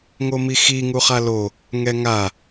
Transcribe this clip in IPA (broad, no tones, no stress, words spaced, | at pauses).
ŋomixi ŋuχalo | ŋɛŋa